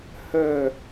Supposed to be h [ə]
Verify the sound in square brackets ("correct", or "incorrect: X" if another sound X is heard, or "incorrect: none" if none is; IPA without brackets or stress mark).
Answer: correct